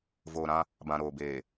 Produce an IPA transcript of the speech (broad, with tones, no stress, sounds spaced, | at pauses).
v oː˨ ɾ ã˦ | b ã˨ ɾ oː˨ b eː˨